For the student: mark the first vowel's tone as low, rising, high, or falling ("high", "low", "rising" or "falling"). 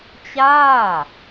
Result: falling